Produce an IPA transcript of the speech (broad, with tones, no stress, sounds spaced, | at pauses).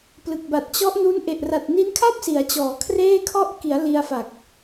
p l ɯ˨˩ k̚ b a˨˩ t̚ t͡ɕ ɔ˦˥ ʔ n u˦˥ n ʔ e˨˩ ʔ r a˨˩ t̚ n i˦˥ n kʰ a˥˩ p̚ s i˩˦ a̯ t͡ɕ ɔː˩˦ kʰ r eː˥˩ kʰ ɔ˥˩ ʔ k i˩˦ a̯ l i˧ a̯ f a˨˩ k̚